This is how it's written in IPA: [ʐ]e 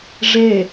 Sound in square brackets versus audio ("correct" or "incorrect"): correct